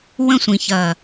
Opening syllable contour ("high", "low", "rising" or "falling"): high